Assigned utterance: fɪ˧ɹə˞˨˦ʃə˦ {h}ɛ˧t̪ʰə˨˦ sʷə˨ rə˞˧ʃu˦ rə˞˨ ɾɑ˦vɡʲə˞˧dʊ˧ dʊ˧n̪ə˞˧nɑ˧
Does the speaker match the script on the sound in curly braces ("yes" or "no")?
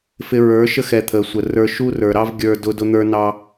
no